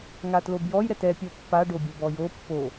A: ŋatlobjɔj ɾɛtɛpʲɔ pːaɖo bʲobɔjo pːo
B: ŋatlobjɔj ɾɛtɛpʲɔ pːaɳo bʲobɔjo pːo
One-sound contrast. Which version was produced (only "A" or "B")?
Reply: A